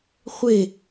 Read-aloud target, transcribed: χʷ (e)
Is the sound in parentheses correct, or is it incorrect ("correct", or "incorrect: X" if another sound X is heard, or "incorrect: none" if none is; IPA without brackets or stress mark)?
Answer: correct